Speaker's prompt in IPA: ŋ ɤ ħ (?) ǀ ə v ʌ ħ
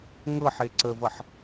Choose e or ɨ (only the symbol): e